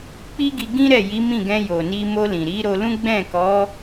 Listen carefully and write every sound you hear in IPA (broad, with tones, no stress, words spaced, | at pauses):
k͡pi˦ɡi˧ɡĩ˦ɾɛ˦˨ ji˨˦mĩ˦˨ɡɛ̃˧jo˨ ni˧mo˧lĩ˨ ɾi˨˦ɾo˧lũ˦ ɡ͡bɛ̃˦˨kɔ˨˦